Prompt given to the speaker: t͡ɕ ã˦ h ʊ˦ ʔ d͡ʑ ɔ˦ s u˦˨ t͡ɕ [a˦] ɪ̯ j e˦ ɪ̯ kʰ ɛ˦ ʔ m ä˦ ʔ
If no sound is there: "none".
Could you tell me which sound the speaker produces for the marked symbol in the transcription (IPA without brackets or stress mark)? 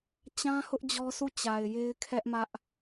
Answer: a˨